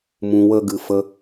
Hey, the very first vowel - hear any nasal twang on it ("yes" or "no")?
yes